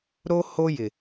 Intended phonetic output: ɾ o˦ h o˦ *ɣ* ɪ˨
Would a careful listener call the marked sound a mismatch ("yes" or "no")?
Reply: yes